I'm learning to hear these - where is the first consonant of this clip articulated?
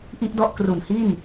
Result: throat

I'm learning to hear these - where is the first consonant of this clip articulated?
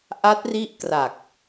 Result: throat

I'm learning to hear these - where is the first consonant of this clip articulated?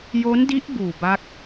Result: palate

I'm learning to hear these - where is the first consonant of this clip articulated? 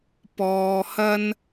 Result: lips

